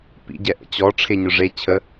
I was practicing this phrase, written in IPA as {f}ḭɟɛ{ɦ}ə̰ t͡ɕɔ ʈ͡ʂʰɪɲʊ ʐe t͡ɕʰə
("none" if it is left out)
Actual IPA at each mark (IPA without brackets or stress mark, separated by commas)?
p, ʔ